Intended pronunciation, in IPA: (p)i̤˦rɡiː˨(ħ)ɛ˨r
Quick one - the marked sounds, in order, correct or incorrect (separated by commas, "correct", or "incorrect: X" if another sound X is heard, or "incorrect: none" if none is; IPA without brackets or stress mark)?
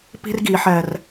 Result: correct, correct